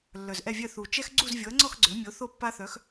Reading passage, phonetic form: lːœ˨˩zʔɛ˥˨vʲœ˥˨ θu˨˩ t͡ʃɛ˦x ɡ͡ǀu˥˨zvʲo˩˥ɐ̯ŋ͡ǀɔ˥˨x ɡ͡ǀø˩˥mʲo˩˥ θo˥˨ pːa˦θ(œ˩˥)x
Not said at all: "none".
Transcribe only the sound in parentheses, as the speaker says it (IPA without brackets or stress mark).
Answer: œ˩˥